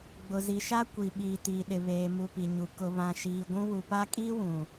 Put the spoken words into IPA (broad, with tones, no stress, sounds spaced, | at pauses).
ɡ͡b ʊ˨ z i˨ ʃ a˦ kʷ i˨ ɓ iː˨ t iː˨ ɗ ɪ˨ β eː˨ m u˨ p i˨ ɲ u˨ k ʊ˨ β ã˨ ʃ iː˨ ɡʷ ũ˦ w u˨ p a˦ kʼ iː˦ w ũ˨